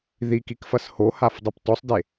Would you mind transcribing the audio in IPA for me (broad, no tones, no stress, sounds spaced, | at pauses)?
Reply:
ð i k i k f ɐ s h o h a f dˤ i p t ɔ sˤ d e